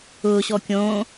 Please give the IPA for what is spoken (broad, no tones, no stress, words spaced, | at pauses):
ʊːɕɔ kʲõː